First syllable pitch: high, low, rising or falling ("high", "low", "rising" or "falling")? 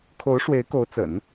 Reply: rising